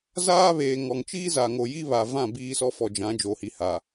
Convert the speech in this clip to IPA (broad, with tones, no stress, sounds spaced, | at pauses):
z aː˦ β eː˨ ŋ ɔ˨ ŋ t͡ʃ iː˦ z a˨ ŋ o˨ j i˦ β a˨ v ã˦˨ b iː˦ s ɔ˦ f ɔ˨ d͡ʒ ã˨˦ d͡ʒ o˨˦ h i˨ h a˨